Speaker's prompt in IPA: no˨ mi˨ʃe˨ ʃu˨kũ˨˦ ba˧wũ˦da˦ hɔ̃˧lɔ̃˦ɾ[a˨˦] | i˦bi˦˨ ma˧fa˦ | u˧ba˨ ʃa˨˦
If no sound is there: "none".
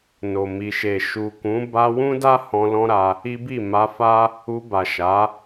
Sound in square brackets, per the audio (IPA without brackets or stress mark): a˧